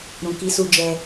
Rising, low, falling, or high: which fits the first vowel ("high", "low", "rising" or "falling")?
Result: low